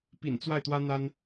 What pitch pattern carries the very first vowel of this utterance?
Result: low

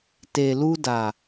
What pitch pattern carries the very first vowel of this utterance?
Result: low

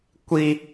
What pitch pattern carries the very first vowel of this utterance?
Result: high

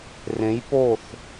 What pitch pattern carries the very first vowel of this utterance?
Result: rising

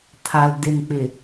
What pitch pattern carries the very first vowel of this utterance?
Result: low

